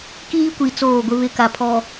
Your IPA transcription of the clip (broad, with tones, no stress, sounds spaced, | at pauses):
k iː˦ kʷ i˨ t͡s oː˦˨ ɡʷ ɪ˦ β ɪ˦ k a˨ pʰ ɔ˨